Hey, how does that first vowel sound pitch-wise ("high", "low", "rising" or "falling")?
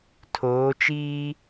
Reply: rising